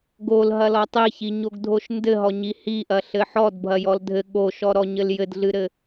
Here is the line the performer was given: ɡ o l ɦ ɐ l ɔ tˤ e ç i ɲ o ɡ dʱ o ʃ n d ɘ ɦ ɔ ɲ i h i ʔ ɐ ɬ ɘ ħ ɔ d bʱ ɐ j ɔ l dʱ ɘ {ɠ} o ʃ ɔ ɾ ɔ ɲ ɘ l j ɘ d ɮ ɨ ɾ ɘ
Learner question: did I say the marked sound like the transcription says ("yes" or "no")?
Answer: yes